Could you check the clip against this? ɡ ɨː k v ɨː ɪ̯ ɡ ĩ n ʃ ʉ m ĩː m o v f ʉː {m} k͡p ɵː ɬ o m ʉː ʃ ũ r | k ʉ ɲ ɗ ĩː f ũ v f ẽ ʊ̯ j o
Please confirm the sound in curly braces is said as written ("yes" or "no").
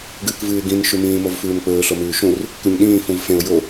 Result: yes